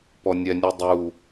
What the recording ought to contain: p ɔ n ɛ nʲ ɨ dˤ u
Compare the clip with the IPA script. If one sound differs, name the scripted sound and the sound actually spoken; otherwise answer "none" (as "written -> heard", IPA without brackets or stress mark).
n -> nʲ